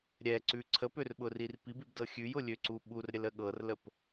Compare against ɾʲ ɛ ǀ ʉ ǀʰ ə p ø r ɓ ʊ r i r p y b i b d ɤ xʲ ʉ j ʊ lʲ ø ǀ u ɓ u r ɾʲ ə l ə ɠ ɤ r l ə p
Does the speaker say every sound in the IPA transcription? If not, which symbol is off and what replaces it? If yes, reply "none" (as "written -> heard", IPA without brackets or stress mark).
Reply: y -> i